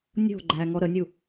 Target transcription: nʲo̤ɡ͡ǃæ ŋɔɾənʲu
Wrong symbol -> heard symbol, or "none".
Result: none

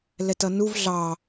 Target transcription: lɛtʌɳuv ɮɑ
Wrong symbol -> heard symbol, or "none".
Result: ɳ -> n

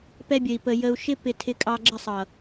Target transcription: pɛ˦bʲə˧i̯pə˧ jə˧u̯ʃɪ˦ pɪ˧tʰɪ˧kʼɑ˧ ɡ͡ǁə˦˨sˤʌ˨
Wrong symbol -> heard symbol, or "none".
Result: none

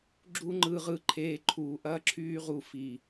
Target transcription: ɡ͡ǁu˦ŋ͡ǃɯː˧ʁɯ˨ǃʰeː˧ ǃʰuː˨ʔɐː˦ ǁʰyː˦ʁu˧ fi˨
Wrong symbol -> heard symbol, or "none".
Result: none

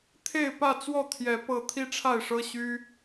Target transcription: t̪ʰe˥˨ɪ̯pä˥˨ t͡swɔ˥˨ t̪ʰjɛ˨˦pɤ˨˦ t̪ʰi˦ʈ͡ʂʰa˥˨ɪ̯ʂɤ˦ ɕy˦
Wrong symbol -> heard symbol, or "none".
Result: none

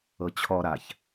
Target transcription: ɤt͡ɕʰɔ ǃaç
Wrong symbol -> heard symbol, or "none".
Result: ǃ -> ɾ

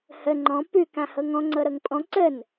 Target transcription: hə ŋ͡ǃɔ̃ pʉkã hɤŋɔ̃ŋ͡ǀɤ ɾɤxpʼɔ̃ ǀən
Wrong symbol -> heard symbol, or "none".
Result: x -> ŋ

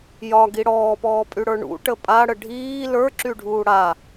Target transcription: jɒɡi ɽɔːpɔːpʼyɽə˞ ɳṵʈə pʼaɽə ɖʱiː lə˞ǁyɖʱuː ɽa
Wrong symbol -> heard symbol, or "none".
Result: none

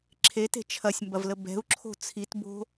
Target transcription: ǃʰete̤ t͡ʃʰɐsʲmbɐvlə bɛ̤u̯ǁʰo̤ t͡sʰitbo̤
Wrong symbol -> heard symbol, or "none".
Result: ǃʰ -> ǁʰ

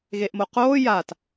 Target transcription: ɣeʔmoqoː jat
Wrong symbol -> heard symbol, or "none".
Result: none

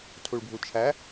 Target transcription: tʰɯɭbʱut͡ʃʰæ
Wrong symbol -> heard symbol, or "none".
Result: ɯ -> u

